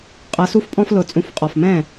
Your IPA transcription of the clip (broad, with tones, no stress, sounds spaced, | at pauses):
qʼ ʌ˨˦ s u˦ f pʼ ɔ̃˦ f l ʊ˧˩˧ t͡sʼ ũ˨˦ f qʼ ɔ˨˩ f m ɛ̃˥˨